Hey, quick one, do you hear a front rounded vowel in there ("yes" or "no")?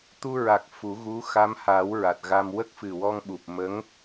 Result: no